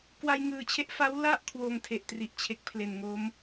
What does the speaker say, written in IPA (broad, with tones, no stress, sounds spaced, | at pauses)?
k w a˧ j ŋ ɯː˨˩ t͡ɕʰ e˦˥ ʔ f a˦˥ w l a˥˩ ʔ kʰ w oː˧ ŋ tʰ e˨˩ ʔ t r i˨˩ ʔ t͡ɕʰ e˨˩ k̚ pʰ l e˨˩ n ŋ o˦˥ m